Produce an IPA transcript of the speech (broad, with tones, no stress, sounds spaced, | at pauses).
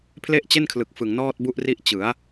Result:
pʰ l e˥˩ ʔ t͡ɕ e˥˩ n kʰ l ɯ˨˩ k̚ f ɯ˨˩ ŋ n ɔː˥˩ t̚ b u˥˩ ʔ r i˥˩ ʔ t͡ɕ ɯ˩˦ a̯